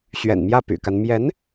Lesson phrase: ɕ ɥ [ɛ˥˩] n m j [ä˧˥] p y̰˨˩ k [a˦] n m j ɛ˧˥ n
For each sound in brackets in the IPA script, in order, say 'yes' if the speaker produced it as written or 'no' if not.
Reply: no, no, yes

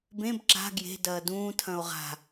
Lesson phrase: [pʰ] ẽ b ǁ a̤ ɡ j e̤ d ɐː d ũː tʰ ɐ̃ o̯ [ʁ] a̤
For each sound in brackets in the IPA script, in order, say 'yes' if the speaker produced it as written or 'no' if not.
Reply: no, yes

